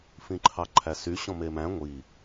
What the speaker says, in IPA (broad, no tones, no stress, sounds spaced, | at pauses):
f ĩ ǃʰ ɑ ǃʰ æ s y ɕ ɔ̃ m e m æ̃ ŋʷ i